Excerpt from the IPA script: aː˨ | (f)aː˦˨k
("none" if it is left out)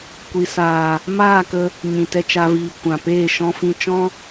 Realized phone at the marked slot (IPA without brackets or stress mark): m